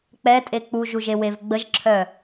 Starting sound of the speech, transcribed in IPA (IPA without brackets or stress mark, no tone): k͡p